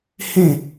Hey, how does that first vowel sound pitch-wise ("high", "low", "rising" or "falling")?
falling